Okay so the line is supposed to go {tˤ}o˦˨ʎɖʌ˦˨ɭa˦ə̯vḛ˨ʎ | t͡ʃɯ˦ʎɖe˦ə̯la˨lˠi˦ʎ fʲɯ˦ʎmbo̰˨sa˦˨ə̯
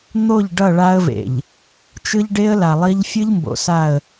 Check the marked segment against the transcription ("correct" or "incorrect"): incorrect